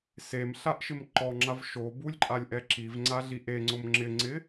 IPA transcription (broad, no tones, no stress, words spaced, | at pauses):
semɬaʔʃɪm ǃɔŋ͡ǁav ʃo bulʲǃʼalʲʔɛ ǁivŋ͡ǀaɮi ʔeŋ͡ǀʊm ŋ͡ǁɪŋ͡ǀɪ